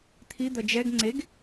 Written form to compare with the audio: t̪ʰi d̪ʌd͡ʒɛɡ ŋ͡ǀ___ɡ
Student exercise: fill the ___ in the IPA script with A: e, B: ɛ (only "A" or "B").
A